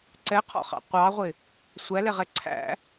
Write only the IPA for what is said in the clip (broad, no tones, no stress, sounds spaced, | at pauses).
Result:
ǀ ɛ qʰ ɔ̰ χ ɑ̰ qʷ ɑ ʁʷ ɪ | sʷ æ l ɛ ʁ ɛ ǀʰ æ̰